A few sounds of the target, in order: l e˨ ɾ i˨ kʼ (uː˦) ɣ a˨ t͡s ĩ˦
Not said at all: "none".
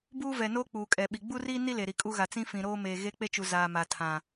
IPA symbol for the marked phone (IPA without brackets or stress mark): u˦